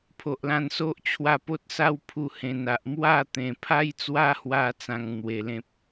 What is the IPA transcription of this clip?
pʰ o˨ ʔ l ã˧ n s o˦ ʔ t͡ɕʰ w a˧ p o˦ t̚ s a˦ w pʰ u˧ h ẽ˨˩ n a˨ ʔ m w a˥˧ t̪ ẽ˨˩ pʰ a˦ j t͡s w a˦ h w a˧ t͡s ã˧ ŋ n̪ w e˨˩ l ẽ˦ p̚

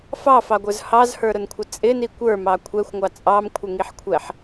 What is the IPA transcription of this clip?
f ɑ f ɑ ɡʷ ə˞ z h ɑ z h ə˞ ɾ ʊ n kʷʰ ɪ t͡sʼ ɪ n i kʷ ə˞ m ɑ kʷʰ ɛ xʷ ŋʷ ɑ t͡sʼ ɑ m kʷʰ ɪ ŋ i ħ kʷʰ ɛ ħ

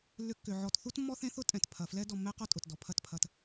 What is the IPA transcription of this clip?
lː ʏ˧ kː ʏ˨ ʕ ɔ˧ t θ u˦ t mː ɔ˦ θ ẽ˦ θ ʊ˦ tʼ ɛ̃˨ t pʰ ɐ˨ f l ɛ˦ d ɔ˧ mː ɛ˦ q ɔ˦ tʼ ʊ˨ t d ɔ˨ pʰ ɐ˦˨ t pʰ ɐ˧ t

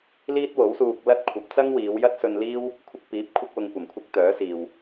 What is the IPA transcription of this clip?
l iː˥ t̚ w o˨˥ w s uː˧ k̚ l ɐ˥ t̚ kʷʰ ɐ˨˥ p̚ t͡s ɐ˥ ŋ w iː˨˧ w j ɐ˥ t̚ s ɵ˧ n l iː˥ w | kʷʰ ɪ˧ k̚ p iː˨˥ p̚ kʷʰ ɪ˥ k̚ w ʊ˧ ŋ kʷ ɐ˨˩ m kʷʰ ɐ˥ k̚ t̪ œː˨˥ s iː˨ w

